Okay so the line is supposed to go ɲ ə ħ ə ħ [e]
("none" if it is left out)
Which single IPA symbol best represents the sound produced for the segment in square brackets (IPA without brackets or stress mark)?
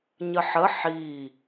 i